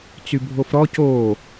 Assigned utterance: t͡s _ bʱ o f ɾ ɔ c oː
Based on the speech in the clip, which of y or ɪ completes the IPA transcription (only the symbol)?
y